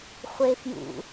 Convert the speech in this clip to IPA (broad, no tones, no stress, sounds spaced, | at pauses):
χʷ e f j ṵ